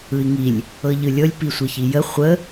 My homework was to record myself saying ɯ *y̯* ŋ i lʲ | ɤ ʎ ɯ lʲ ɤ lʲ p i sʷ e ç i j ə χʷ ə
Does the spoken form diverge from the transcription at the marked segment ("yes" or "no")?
yes